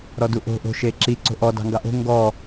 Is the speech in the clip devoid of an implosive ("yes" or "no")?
yes